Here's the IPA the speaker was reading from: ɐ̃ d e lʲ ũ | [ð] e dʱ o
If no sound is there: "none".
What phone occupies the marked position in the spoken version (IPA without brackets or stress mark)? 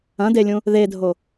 ð